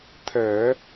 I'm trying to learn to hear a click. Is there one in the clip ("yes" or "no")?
no